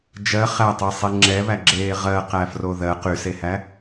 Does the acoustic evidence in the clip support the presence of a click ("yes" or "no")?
yes